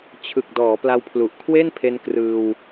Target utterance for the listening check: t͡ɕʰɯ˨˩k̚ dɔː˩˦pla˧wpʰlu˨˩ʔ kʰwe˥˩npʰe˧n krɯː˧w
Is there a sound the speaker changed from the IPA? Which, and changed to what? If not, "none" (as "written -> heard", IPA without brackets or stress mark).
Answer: none